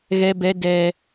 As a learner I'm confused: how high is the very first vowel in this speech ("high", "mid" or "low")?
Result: mid